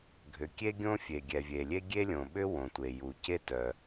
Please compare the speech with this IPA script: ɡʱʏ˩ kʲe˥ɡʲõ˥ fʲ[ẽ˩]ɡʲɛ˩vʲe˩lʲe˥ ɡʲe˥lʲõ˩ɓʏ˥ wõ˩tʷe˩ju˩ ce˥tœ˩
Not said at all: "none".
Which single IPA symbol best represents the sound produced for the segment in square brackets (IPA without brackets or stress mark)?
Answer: e˩